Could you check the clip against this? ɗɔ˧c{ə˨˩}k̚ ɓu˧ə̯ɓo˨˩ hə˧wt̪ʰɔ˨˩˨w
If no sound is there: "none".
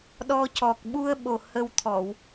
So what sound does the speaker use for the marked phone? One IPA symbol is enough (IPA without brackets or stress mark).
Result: ɔ˨˩